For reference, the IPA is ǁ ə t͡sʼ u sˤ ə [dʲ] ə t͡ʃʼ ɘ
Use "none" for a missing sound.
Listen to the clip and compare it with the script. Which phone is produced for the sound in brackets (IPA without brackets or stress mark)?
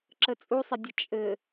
dʲ